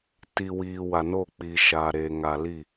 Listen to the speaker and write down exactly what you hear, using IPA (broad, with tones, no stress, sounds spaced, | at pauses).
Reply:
t i˨ w iː˨ w a˨ n o˦˨ k͡p iː˨ ʃ aː˨ ɾ eː˨ ŋ a˨ l i˦˨